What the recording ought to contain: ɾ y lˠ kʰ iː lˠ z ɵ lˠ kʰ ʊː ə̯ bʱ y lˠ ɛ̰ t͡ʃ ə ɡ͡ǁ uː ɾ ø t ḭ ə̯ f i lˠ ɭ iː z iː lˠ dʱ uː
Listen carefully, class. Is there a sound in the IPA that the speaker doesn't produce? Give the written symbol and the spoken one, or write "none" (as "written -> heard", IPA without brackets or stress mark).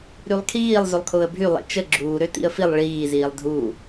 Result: none